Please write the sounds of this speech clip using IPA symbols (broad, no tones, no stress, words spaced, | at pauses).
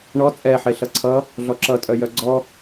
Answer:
ɳɔ t͡sʼɛħe ɬʌǀʰʌ | ɮɔǁʌtʼœ jœɡ͡ǀɔ